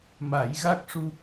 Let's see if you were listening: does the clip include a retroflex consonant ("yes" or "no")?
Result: yes